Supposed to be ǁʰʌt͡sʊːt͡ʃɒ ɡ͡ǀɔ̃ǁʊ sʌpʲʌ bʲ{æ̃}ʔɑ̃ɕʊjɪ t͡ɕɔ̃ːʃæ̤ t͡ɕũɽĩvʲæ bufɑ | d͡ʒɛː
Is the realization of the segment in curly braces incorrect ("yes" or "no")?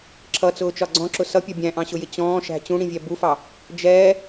no